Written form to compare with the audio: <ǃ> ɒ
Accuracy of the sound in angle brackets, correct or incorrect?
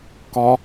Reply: incorrect